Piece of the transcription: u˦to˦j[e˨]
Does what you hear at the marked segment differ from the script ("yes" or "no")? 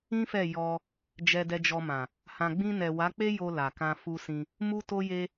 yes